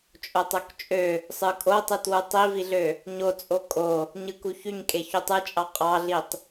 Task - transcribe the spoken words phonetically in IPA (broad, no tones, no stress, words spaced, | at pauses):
t͡ʃʼotˤokt͡ʃʼø | sˤɯkʼotˤɯt wutˤiviɮø | ɲot͡sʼo kʼo | ɲɯkuçyɲkʼe çutˤɯt͡ʃʼɑ qʼɑɮitˤ